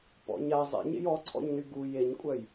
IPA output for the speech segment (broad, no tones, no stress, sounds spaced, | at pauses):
p ɔ̰ ɲ a zˤ ḛ ɲ ḛ j ɔ ǀʰ ɔ̰ ɲ n y ɡ u j e ɲ kʷʼ œ j